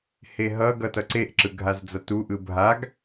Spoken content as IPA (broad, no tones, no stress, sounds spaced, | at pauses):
h e ɦ ʌ ɡ ʌ t ʌ ǀ e ʔ ǁ ɯ ɡʱ a z d͡z ʌ t u ʔ ɯ bʱ a ɡ